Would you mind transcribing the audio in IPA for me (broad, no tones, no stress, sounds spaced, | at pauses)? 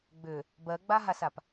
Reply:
ɡ͡b ʏ | b ɜ ɡ͡b a ɦ a s a p